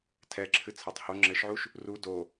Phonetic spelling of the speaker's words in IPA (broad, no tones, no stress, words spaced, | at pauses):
tʰɛǁʰɨ t͡sʰatˤho ŋ͡ǁɘʃʕuʃ | ru do